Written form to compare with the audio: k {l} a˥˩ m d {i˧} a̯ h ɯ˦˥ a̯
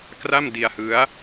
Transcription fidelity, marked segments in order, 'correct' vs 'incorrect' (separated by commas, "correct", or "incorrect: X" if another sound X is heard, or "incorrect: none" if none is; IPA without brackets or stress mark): incorrect: r, correct